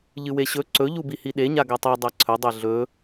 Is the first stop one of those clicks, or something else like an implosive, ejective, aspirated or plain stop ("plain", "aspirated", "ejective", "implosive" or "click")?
click